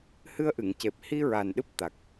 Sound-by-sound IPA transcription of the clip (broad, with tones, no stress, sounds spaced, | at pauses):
h ɨ˧ ə̯ ʔ ɨ˨˩˨ ŋ c e˨˩ p̚ h i˧ ɹ a˨˩ n ɗ ɨ˦˥ p̚ t̪ a˨˩ k̚